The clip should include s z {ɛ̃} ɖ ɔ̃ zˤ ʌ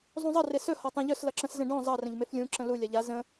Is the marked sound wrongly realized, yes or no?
yes